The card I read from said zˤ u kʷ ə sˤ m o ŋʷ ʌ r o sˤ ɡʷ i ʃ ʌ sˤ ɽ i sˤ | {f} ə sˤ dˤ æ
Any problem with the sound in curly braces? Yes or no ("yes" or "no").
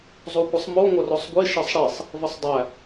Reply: yes